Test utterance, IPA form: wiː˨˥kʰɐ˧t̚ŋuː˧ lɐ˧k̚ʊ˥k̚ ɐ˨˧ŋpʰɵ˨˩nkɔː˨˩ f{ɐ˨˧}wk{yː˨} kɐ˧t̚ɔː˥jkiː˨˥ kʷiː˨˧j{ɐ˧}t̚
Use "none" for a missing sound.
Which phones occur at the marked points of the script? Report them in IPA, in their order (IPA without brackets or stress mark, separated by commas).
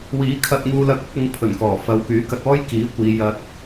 ɐ˨˧, yː˨˥, ɐ˧